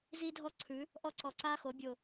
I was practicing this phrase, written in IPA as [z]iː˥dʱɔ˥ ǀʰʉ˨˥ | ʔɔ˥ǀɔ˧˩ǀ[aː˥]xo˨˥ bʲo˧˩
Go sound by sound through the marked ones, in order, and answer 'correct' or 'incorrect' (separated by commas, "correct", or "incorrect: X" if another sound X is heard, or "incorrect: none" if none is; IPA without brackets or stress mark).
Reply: correct, correct